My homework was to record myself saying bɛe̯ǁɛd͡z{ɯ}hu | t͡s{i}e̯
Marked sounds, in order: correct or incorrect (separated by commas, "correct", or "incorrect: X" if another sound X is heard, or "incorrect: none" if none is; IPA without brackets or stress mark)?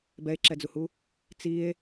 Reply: incorrect: u, correct